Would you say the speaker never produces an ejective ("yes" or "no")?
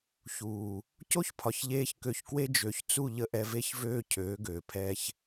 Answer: yes